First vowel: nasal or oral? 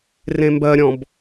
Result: nasal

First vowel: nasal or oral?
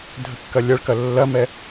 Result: oral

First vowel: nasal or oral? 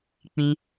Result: nasal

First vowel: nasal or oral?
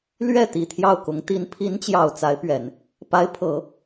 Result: oral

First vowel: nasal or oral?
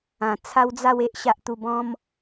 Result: nasal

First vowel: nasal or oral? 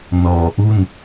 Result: oral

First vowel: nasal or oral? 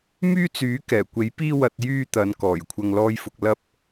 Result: oral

